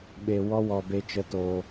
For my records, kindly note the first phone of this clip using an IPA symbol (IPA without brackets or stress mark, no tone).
ɓ